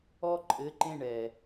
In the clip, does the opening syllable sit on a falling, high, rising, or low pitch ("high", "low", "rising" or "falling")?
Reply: high